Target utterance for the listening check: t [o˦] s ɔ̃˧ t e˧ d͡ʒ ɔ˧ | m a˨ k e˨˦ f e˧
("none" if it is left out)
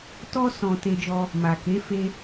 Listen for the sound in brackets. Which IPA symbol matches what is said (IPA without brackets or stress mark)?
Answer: ɔ˦